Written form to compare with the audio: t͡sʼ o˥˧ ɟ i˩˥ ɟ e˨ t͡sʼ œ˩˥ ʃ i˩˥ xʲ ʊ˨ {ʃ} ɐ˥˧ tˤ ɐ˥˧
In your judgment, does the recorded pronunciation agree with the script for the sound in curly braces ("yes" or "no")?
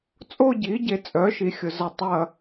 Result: no